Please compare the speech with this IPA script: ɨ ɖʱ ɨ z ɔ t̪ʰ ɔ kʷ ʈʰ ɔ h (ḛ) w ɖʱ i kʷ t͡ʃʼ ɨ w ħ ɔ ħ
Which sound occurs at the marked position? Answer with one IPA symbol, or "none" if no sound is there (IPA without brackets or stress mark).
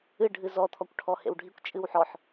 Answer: ḛ